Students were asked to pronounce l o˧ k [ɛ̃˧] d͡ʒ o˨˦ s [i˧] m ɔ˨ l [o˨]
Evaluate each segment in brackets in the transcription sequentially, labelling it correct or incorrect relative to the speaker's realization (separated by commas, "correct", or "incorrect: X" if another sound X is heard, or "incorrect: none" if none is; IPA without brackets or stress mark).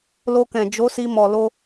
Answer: incorrect: ɛ̃˨, correct, incorrect: o˧